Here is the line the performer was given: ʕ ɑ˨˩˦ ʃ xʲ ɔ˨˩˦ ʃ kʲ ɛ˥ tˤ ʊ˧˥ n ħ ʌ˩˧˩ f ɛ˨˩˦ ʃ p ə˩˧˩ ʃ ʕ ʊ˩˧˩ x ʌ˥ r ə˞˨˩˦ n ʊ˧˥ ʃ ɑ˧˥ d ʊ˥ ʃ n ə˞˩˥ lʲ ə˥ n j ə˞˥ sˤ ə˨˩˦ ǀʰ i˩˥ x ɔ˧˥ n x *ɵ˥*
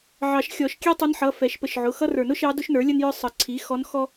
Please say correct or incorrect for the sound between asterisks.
incorrect